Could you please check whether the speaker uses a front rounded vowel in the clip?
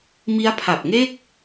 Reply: no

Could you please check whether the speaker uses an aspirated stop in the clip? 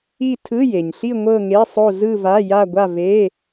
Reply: yes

